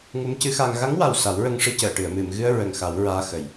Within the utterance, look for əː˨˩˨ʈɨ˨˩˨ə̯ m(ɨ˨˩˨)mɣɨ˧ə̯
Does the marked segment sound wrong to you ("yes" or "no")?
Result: no